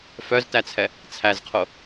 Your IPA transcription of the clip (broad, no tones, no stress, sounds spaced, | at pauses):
f œ z t æ t͡sʰ ɛ | t͡sʰ æ z qʰ o